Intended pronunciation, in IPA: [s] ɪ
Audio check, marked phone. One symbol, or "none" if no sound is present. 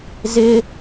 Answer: z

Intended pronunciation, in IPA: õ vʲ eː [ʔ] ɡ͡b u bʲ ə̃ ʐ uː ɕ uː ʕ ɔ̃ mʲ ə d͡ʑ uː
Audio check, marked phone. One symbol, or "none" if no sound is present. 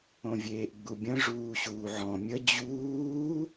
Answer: ʔ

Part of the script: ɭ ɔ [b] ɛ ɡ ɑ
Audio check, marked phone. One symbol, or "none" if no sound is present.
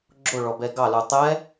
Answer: b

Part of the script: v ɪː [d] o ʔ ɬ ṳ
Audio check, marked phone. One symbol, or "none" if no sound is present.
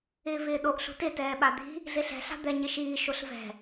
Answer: ɗ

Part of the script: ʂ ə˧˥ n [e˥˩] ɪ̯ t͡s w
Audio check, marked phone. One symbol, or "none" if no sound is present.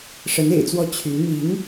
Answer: ḛ˨˩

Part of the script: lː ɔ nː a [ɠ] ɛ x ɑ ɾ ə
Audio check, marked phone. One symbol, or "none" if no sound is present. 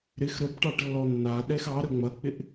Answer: ɗ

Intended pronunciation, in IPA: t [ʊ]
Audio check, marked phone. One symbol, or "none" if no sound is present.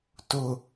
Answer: ʊ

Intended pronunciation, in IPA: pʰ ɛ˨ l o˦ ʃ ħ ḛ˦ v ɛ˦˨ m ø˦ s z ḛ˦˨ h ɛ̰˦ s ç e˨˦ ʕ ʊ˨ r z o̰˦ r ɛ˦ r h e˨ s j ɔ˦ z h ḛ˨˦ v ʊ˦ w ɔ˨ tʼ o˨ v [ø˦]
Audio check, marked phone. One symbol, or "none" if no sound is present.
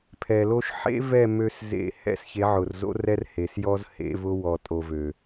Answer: ø˨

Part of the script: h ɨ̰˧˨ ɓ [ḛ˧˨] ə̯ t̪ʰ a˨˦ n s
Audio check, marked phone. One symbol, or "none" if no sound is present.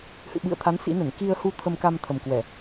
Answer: ɨ̰˧˨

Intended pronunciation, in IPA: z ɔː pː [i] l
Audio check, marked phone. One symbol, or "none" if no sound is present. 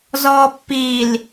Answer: i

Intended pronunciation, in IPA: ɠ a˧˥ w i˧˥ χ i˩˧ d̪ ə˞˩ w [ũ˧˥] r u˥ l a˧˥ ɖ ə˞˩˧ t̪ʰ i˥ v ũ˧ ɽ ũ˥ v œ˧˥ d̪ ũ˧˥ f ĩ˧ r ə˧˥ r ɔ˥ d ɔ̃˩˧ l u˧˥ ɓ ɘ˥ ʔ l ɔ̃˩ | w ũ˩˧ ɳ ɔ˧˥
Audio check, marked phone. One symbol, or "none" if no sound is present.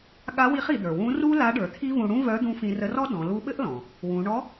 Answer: ũ˧˥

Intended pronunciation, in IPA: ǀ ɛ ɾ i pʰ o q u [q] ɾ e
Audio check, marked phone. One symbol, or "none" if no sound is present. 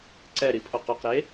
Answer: q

